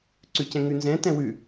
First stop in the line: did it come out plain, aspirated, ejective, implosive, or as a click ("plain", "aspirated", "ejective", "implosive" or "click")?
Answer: click